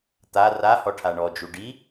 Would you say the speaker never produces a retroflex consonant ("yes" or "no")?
no